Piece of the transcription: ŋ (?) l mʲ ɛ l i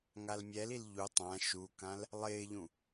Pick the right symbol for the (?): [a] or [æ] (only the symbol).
a